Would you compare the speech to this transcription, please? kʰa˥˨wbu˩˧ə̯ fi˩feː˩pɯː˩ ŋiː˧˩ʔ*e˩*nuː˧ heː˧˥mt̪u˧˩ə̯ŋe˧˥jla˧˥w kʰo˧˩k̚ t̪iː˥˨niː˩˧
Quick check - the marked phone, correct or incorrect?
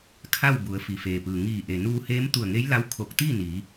correct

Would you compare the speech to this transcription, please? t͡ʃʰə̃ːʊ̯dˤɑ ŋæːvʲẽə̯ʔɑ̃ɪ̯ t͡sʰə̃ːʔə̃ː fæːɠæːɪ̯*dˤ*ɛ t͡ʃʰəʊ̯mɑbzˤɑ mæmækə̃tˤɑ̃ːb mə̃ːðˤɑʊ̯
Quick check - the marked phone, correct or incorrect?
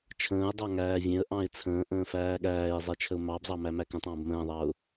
incorrect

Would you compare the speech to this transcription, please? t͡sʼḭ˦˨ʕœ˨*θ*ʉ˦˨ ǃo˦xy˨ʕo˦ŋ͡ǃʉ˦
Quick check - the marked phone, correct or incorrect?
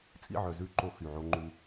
incorrect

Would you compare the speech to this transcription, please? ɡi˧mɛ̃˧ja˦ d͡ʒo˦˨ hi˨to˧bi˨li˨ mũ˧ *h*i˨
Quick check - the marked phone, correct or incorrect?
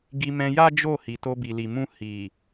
correct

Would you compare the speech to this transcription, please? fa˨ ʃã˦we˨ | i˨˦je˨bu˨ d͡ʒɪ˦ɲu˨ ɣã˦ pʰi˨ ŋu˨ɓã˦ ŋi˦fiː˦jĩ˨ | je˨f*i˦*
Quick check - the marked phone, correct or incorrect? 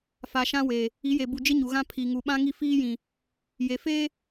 incorrect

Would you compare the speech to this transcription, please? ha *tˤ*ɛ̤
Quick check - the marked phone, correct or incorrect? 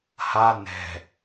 incorrect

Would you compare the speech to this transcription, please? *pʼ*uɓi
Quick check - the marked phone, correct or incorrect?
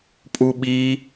correct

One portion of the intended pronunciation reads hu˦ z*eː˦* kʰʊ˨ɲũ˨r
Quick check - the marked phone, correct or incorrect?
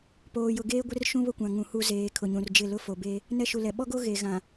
incorrect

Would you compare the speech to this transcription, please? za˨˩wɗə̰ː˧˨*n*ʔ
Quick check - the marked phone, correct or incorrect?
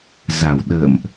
incorrect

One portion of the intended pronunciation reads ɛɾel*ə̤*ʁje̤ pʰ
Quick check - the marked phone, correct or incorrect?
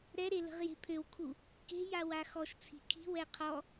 correct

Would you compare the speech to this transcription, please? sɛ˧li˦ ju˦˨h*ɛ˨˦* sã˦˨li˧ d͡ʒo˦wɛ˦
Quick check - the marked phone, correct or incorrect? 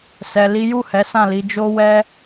correct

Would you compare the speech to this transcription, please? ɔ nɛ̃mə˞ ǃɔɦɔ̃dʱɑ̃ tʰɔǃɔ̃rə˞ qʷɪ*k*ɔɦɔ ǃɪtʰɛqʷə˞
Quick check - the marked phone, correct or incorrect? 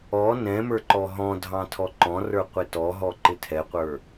incorrect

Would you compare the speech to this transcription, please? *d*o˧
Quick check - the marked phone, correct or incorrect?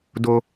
correct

